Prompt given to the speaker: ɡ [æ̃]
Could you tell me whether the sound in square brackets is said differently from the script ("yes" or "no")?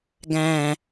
no